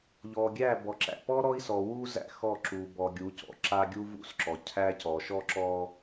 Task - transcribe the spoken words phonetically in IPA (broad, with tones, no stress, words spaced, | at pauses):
ʎɔ˨ɡʲæ˦˨ bɔ˨ǁæ̰˨pɔ˦ ɾɔ˦i̯sɔ˨wu˦ zæ̰˦xɔ˦˨ ǁu˨bɔ˨ ɡʲu˨˦cɔ̰˨ǁa˦ ɡʲu˦vṵ˦sǁɔ˨ cʰæ˦cɔ˨ ʃɔ˦ǁɔ˦